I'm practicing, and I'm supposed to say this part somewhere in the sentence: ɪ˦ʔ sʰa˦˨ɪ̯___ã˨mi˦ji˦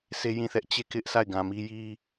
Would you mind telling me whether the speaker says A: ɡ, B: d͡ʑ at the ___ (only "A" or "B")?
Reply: A